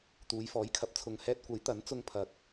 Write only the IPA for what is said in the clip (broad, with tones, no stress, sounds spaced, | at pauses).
t̪ uː˨˧ j f ɔː˨˥ j kʰ ɐ˨ p̚ t͡sʰ ʊ˨ ŋ h ɛː˧ t̚ kʷ ɐ˨˥ j t̪ ɐ˨˥ n t͡s ʊ˧ ŋ pʰ ɐ˨˥ k̚